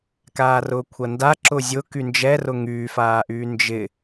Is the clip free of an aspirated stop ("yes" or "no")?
no